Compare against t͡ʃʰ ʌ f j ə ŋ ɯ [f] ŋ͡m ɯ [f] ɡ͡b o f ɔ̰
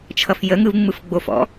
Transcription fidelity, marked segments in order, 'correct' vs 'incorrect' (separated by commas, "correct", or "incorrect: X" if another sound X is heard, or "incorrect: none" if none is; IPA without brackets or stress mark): incorrect: v, correct